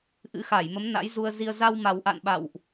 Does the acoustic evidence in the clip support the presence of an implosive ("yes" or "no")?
yes